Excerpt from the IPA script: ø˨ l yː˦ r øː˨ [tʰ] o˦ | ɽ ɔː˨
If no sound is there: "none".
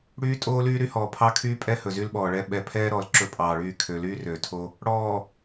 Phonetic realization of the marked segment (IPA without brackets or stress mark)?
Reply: tʰ